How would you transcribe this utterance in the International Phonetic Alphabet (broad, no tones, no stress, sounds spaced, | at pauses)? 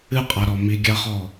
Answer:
ɨ qʼ a ɾ ɔ m i ɡʲ a χ ɔ